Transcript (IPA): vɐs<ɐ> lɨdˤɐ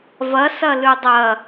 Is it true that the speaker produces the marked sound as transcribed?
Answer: yes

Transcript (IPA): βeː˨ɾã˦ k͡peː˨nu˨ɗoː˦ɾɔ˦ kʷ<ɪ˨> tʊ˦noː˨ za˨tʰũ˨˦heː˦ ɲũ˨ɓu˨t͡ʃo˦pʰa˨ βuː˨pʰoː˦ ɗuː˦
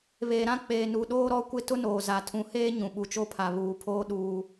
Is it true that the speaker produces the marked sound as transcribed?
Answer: no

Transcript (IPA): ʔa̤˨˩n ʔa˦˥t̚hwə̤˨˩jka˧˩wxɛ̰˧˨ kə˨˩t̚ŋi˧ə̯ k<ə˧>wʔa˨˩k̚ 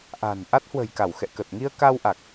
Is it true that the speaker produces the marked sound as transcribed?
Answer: no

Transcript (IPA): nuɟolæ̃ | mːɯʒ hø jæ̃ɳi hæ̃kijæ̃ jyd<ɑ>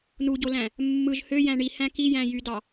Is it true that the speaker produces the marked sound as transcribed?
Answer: yes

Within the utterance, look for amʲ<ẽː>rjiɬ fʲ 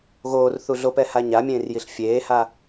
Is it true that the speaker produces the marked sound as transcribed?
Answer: yes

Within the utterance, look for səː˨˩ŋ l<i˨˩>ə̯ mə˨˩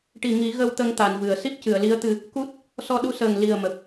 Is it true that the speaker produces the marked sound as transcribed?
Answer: yes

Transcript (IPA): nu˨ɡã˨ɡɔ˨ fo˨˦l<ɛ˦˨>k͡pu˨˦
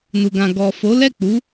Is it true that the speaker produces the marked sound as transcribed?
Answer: yes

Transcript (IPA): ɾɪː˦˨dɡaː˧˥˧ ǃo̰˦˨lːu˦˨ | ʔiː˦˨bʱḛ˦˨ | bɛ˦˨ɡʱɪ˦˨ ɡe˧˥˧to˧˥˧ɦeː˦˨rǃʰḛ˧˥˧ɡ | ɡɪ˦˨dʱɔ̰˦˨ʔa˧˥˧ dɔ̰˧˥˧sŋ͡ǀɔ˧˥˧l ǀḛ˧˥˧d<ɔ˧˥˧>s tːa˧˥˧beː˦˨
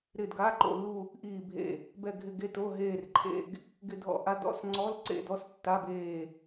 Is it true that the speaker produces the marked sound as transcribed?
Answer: yes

